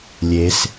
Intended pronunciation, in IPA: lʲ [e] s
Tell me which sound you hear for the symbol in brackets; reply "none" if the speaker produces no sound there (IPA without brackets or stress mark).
e